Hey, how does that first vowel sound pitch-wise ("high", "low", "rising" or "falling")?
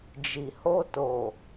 low